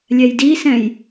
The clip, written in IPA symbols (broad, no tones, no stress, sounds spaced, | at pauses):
lʲ ɛ j d i s ɛ̃ j